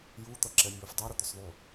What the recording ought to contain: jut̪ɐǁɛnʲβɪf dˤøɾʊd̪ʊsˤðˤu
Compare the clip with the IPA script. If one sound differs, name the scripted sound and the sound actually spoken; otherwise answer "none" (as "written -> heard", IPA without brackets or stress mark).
none